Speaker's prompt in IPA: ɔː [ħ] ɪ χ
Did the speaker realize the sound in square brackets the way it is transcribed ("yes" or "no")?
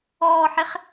yes